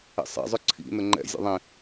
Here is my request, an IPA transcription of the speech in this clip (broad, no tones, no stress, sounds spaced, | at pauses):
ḛ sˤ ḛ zˤ ʊ ǀʰ ḭ n ʊ ŋ͡ǃ ɛ̰ zʲ ɛ̰ ðˤ ĩ